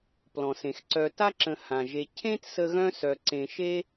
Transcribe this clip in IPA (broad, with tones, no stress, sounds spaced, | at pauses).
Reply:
p l ɔ̃˩ s ẽ˩ x ǀ œ˨ t a˥ ǁ ə̃˨ h ã˩ ʒ e˨ cʰ ẽ˥ t s ə˦ ɣ œ̃˥ s œ˨ ǀ ẽ˨ ʃ e˦